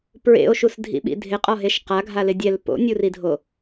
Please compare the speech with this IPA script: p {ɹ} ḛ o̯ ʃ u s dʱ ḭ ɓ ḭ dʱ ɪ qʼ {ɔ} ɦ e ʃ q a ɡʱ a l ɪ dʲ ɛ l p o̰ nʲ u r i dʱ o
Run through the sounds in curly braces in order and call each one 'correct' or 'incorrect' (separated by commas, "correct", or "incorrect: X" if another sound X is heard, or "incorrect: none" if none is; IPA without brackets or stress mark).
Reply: correct, correct